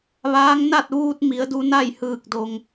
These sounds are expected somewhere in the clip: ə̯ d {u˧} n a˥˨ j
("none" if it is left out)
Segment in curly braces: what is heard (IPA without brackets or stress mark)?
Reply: u˧